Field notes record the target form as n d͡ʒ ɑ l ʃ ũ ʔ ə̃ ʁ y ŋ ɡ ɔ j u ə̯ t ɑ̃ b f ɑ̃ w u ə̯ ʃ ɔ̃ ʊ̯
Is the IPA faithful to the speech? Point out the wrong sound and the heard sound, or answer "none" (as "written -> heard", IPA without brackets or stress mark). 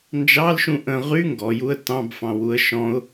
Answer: none